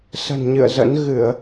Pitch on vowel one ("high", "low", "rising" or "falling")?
low